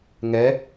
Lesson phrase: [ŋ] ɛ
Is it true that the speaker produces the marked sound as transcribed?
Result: yes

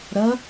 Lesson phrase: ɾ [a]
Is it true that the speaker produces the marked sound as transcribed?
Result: no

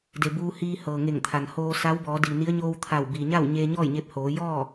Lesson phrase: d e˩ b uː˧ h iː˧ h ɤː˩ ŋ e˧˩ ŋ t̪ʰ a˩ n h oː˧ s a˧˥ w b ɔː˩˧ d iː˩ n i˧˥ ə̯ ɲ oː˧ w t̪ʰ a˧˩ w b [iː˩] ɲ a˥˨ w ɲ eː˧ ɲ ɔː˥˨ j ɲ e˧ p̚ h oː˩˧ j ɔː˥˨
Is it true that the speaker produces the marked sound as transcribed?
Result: yes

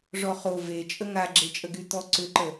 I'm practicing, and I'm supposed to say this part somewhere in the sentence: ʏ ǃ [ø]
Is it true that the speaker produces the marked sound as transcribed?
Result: no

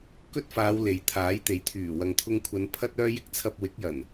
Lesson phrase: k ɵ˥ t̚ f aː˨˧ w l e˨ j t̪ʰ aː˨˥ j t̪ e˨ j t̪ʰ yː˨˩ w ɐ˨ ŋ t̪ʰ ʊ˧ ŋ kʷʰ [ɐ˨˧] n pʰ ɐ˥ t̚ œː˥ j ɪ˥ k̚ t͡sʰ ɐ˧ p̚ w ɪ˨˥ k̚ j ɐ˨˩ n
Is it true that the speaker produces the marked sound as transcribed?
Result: yes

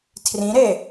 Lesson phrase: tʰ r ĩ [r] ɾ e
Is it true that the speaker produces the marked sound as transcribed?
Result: no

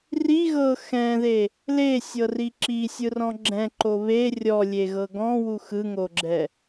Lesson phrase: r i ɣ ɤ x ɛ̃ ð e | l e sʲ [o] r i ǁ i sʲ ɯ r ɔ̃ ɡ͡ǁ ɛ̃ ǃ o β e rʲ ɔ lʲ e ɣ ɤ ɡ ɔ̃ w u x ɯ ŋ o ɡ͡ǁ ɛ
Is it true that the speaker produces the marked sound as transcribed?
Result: no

